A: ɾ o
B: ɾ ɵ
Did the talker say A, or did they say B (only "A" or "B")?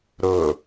B